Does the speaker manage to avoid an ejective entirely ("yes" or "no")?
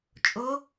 no